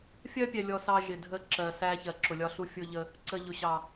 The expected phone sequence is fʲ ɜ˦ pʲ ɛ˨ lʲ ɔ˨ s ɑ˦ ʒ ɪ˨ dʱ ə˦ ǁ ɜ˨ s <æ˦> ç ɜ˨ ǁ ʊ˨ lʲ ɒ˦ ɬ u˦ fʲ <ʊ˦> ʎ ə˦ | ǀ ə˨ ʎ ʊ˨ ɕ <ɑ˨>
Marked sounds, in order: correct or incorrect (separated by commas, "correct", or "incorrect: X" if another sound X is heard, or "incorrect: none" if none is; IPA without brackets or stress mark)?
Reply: correct, correct, correct